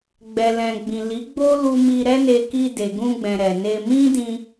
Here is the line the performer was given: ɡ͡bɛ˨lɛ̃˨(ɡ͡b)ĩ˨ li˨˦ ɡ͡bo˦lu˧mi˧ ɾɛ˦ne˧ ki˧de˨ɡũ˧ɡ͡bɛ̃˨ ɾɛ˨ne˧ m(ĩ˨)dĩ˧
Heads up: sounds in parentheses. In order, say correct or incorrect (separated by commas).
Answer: correct, incorrect